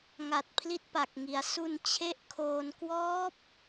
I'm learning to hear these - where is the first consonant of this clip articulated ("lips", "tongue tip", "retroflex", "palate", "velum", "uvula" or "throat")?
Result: velum